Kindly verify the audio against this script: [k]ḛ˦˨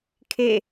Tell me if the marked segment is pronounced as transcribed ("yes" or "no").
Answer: no